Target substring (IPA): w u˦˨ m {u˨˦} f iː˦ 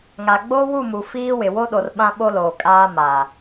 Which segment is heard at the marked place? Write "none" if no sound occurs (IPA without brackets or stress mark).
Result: u˨